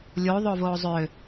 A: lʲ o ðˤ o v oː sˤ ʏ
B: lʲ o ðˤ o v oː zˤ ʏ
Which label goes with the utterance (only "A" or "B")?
B